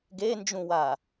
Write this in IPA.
ɡ e n d͡ʒ ũ w a

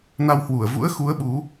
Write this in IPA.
n a˧ w h w u˧˩ ə̯ v ṵ˧˥ ə̯ x u˨˦ ə̯ ɓ u˨˦

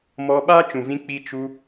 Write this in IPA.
m ɔ˧ ɓ a˦ t͡ʃ ũ˨ v ĩ˧ k͡p i˧ t͡ʃ u˧

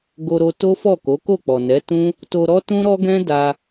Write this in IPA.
ɡ o˧ ɾ o˧ t o˦ f ɔ˦˨ k o˨˦ k o˦˨ k͡p ɔ˨ n ɛ˨˦ t ũ˦ | t o˧ ɾ ɔ˦ t ũ˦ ɾ ɔ˦ ɡ ɛ̃˦ d a˧

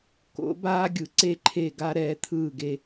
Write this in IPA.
k o̰˩˥ b aː˧ ɡʲ ɯ˩˥ ǀ e˧˩ ǃʰ e˧˩ ɡ a˧ ɾ ɛː˩˥ t̪ʰ ɯː˧˩ ɡ e˧

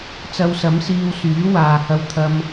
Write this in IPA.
t͡s ɐ˧ w s ɐ˨˥ m s iː˧ w s yː˨˥ w aː˨ h ɐ˧ w t̪ʰ ɐ˧ m

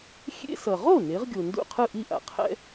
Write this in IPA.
xʲ ḛ˧ s ʌ˩ ʁ o˥˩ n e˩˥ ʁ ɡʲ o˩ n d ṵ˥˩ qʰ ɯ˥˩ ʔ i˥˩ ʔ a̰˩ qʰ ɛ̰˥

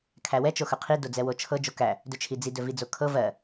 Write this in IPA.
kʰ æ w ɛ t͡ʃ o x ɵ qʰ i d o d͡z ɛ w o t͡ʃʰ ɤ d͡ʒ o k æ | d ɵ t͡ʃʰ i d͡z i d ɵ v i d͡z o kʰ ɤ v ɜ

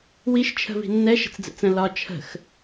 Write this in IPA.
w i ʃ t͡ʃʰ ə̤ v i̤ nː ɛ ʃ ə̤ t͡s d͡z ɛ̰ t͡s ə̃ l ɒ t͡ʃʰ ə̤ x

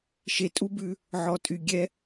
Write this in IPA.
ʃ e˨ tʼ u˦ b ʉ˧ | ʕ ɔ˨ tʼ y˨ ɡʲ ɛ˦

